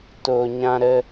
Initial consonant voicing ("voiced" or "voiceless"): voiceless